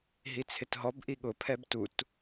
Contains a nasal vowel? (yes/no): no